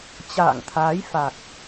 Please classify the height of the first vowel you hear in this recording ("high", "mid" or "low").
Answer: low